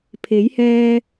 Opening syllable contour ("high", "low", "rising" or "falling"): rising